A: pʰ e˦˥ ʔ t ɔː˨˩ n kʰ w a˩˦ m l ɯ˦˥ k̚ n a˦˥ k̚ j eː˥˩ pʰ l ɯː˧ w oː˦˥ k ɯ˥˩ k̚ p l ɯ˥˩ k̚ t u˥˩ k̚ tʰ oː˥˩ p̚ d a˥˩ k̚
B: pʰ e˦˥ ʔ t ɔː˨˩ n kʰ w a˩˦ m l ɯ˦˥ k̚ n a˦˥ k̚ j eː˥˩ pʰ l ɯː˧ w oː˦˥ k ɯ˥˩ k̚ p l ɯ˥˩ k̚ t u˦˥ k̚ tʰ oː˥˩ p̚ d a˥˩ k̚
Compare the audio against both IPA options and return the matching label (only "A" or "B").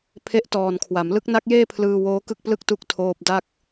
B